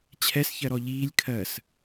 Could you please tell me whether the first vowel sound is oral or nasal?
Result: oral